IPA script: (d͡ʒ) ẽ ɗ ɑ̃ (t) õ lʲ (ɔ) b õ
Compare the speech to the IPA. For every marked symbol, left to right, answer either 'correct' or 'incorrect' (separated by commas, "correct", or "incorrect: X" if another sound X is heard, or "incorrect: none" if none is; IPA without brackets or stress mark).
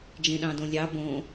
correct, incorrect: d, incorrect: ɑ